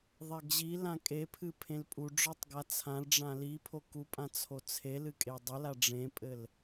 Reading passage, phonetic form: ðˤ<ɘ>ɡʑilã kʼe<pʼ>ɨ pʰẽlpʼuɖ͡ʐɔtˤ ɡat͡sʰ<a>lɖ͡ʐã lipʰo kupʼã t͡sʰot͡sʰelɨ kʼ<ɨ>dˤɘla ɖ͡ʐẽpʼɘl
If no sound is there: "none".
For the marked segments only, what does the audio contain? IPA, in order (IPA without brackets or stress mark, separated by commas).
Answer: ɛ, pʰ, ã, e